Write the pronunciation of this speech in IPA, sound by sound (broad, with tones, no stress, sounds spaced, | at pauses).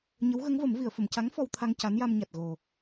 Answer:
ɲ ə˧˥ w ɣ ə˧˥ ŋ v ə˨˩˦ m v i˨˩˨ ə̯ f ə˨˩˨ m c a˧˥ ŋ f ɔ˧ w t̪ʰ a˧ ŋ c a˧˥ n j a˧ m ɲ a˨˩ t̚ ɣ o˨˩